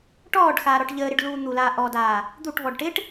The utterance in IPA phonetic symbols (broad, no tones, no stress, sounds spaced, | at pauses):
ʈ ɔː ɖ x aː ɾ ɔ ʈ ʎ əː ɾ ɪ ɖ l uː n̪ u l aː ʔ ɔ d aː | d̪ u ʈ v ɔ ɖ ʈ ɪ ʈ